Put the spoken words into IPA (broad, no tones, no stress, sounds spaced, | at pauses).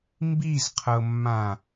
m b i z qʰ ɤ mː ã